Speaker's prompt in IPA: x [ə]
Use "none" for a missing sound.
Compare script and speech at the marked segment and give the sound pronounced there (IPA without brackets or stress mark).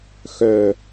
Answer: œ